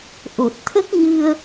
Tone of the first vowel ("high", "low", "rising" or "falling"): low